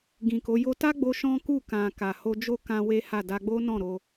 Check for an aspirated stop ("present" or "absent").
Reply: absent